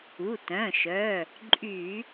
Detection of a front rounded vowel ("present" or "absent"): present